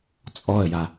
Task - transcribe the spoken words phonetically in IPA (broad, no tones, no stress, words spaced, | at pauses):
t͡sʼɔə̯ja